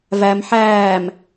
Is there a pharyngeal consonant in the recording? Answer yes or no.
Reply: yes